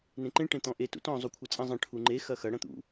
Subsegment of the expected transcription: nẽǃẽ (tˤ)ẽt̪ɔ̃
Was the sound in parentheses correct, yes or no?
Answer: no